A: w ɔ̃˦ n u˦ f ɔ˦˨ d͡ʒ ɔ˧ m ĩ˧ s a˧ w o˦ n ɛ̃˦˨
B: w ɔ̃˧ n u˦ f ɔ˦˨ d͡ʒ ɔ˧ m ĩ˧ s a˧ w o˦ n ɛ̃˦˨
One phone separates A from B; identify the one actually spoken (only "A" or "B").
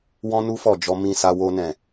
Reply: A